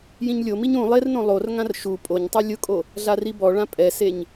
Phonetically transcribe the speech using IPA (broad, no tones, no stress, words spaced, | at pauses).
jĩɲlʲomiɲ ũ lˠernõ lˠorŋãr ʃu pʼoɲtˤi lʲʊkʼo | ɮaribɔɭã pʼɛseɲ